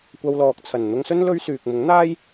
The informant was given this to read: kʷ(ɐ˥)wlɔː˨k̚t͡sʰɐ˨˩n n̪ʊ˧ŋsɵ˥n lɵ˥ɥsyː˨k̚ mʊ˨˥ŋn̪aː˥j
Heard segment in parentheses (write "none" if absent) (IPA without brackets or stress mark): ɐ˧